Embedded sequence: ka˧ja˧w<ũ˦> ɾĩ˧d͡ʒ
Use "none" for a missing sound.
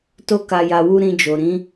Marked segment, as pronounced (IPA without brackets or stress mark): u˦